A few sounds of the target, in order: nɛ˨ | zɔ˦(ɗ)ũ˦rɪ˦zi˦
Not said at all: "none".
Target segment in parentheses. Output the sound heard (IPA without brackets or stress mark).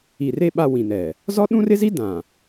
ɗ